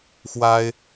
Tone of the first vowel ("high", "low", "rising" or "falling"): high